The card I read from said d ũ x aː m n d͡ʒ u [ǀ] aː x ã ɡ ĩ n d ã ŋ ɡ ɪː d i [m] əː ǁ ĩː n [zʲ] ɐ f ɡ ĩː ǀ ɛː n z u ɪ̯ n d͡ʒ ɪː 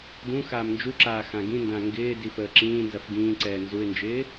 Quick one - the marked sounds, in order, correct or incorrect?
incorrect, incorrect, incorrect

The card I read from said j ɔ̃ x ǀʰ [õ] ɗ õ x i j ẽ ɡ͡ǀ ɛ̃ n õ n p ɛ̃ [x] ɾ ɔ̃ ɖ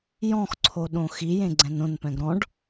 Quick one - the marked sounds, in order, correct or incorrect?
incorrect, incorrect

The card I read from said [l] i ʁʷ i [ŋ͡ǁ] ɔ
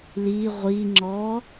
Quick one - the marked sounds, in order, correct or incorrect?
correct, correct

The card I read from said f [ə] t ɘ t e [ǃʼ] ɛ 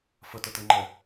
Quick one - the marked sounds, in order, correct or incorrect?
correct, incorrect

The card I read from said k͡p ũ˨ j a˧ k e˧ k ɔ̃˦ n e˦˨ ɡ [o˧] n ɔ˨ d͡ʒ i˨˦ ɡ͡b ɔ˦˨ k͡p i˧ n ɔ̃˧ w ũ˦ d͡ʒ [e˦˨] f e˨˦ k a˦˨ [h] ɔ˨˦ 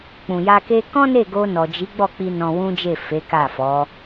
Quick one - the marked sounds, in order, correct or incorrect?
correct, correct, incorrect

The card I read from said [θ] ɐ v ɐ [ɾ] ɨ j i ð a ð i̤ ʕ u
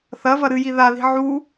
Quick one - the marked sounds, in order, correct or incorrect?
correct, correct

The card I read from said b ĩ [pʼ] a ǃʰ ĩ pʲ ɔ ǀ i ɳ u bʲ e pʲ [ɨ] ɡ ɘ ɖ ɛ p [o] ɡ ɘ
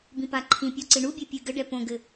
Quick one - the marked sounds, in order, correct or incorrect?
incorrect, correct, incorrect

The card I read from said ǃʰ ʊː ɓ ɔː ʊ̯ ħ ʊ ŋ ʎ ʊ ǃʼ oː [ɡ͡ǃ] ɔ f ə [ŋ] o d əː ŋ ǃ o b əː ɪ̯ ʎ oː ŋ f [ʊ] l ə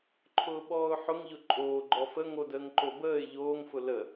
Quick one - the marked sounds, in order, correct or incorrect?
correct, correct, correct

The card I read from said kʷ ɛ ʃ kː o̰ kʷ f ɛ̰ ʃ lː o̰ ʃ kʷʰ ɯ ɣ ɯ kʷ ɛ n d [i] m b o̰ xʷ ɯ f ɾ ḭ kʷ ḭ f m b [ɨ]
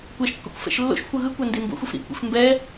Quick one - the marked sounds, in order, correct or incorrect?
correct, incorrect

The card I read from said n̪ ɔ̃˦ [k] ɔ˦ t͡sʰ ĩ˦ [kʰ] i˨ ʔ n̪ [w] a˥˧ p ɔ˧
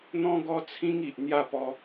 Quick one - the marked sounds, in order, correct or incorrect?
incorrect, incorrect, incorrect

